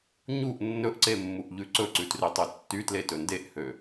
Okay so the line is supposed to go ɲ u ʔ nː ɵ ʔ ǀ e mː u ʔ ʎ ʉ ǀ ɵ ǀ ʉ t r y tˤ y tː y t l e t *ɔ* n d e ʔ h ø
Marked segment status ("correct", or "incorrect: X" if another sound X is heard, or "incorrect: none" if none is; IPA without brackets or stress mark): incorrect: ɵ